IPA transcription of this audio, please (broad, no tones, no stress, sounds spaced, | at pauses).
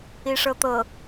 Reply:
i ʂ ɤ t̪ ɤ